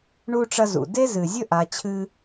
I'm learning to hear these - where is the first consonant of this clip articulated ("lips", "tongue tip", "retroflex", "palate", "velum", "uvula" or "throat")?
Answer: retroflex